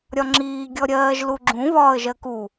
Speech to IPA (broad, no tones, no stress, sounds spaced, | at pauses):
ɾʲ ɒ ŋ͡ǁ iː ɡʲ ɔ ɾʲ ɜː ʒ l u ɡ͡ǁ ũ β ɒː ə̯ ʒ ɜ k u